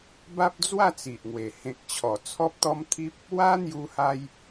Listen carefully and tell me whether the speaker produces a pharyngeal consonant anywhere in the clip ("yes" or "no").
no